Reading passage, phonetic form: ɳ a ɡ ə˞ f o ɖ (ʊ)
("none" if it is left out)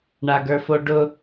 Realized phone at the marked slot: ʊ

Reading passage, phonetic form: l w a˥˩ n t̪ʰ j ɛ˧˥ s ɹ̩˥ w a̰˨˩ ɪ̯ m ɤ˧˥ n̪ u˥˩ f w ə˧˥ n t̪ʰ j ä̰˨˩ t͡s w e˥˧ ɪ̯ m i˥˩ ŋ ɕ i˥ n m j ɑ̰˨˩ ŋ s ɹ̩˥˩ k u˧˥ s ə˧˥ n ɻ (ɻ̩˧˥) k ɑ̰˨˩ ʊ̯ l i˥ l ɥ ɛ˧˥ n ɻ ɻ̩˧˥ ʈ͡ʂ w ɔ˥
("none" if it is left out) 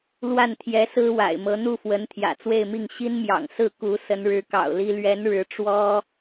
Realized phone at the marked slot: ɻ̩˧˥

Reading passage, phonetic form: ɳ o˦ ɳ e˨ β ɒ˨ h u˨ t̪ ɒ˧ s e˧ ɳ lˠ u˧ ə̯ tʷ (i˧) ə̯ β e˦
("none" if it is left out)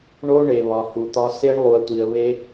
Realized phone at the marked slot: i˧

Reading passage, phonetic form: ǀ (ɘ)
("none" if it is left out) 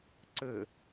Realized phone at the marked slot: ɘ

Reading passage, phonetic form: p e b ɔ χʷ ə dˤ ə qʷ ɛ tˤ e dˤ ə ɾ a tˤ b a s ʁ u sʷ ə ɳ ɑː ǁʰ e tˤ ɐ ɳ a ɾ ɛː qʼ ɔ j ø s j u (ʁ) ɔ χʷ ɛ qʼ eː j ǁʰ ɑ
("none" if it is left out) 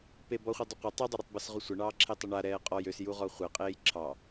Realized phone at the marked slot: ʁ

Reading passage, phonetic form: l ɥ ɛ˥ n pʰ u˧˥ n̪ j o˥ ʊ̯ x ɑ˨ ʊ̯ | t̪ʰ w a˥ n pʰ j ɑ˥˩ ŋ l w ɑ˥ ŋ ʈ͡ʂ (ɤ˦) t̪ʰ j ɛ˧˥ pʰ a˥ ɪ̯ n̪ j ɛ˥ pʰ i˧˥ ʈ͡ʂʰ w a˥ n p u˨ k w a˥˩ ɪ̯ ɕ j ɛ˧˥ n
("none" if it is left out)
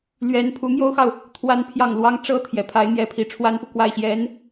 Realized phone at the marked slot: ɤ˥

